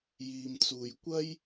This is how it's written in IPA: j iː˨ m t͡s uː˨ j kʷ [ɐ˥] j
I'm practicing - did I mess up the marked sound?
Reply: no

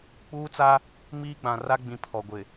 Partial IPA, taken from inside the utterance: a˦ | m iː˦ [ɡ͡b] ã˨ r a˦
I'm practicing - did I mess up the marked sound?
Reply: no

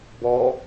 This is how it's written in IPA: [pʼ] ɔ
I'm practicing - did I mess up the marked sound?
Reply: yes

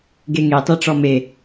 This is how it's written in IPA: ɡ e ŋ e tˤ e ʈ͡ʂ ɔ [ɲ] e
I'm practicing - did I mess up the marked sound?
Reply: yes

